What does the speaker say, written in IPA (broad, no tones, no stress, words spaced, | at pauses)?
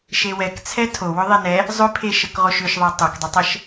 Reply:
ʃewɛkt͡sʰɛ tʰowʏ ðˤenɛ | zˤʏpʰeʃəkʁoʃ ʏʃðˤe tˤokdˤʏtˤəʃ